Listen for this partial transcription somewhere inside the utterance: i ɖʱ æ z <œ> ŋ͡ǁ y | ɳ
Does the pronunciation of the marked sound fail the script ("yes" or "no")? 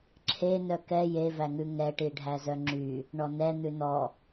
no